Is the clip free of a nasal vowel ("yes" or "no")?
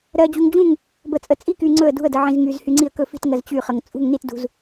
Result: no